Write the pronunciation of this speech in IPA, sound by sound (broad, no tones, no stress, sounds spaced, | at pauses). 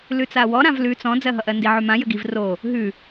l ʉ t͡s a w ɔ ɾ ã v l ʉ t͡s ɔ̃ d͡z ɜ ɦ ʌ ʔ ɜ n d i ʕ ʉ m ã j ə ɡ i v r o | ɦ ʉ